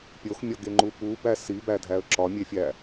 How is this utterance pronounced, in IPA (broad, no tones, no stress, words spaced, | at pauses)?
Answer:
pʲoxmʲɒɡeŋ͡ǃu pubæ sibædʱæə̯ ǁɒmʲefʲæ